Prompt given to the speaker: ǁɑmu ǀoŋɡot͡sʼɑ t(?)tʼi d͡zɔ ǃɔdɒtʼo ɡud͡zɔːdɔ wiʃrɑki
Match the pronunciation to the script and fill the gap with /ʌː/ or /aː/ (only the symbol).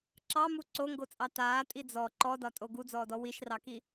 aː